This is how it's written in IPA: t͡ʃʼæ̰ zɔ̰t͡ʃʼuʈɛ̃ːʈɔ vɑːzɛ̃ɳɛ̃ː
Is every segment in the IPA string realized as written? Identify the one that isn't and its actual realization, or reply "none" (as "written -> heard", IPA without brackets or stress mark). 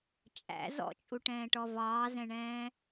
none